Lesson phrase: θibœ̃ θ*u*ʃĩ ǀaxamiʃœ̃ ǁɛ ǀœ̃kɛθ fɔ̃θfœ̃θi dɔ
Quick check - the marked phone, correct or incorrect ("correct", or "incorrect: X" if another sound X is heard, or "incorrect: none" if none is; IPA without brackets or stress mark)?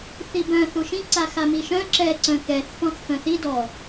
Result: correct